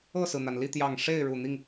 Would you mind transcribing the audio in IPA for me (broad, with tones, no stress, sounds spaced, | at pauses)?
ɤ˥˨ s ɹ̩˩ n̪ a˩ n l i˥˨ t̪ j ɑ˨˩ ŋ ʂ e˥˨ ɪ̯ ɻ u˨˩ n̪ i˥˨ ŋ